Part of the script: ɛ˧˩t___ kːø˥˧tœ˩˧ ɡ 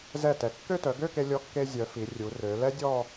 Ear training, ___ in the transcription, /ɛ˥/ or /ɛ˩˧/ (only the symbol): ɛ˩˧